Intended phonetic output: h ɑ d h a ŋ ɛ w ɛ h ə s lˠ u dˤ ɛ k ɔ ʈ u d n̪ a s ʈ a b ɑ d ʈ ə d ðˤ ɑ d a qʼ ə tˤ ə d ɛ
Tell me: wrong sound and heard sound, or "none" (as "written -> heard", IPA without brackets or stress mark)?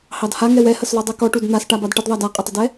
none